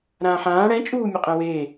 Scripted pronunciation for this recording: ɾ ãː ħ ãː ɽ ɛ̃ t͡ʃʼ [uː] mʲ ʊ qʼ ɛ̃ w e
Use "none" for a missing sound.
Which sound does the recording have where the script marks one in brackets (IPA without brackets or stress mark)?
uː